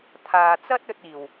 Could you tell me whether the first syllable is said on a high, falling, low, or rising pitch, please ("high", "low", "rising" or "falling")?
low